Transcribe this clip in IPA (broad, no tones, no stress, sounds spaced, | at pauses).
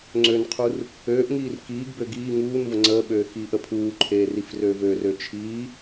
ŋ͡ǀ ø n qʰ u r | øː ʔ ŋ iː r k iː ɡ b ø ɡ iː ŋ uː n v ə ŋ͡ǀ əː ɓ øː x iː ʔ ə pʰ uː ǃʰ eː r i f r ø v ø r ø t͡ʃʰ iː